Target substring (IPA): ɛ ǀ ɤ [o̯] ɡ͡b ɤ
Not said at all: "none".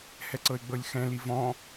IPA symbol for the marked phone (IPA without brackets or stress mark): e̯